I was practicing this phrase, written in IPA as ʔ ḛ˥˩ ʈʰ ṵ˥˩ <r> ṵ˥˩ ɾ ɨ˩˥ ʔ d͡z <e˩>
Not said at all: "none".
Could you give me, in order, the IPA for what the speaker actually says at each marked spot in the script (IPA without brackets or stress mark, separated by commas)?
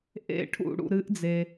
ɽ, e˩